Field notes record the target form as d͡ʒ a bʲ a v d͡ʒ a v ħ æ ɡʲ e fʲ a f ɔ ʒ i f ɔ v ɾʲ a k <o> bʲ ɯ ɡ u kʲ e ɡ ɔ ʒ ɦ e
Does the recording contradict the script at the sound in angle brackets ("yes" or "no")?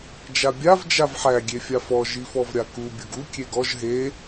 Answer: yes